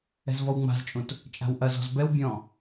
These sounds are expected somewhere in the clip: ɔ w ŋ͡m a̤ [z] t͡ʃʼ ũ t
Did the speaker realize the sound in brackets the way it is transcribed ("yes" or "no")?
yes